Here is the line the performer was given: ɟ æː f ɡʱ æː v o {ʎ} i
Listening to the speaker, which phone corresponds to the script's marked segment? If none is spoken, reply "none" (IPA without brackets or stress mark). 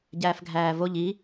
ʎ